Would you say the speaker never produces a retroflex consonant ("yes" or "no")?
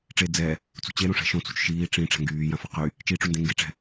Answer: no